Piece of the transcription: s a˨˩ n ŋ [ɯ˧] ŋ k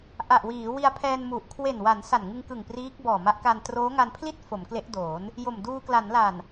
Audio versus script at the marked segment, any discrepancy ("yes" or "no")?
no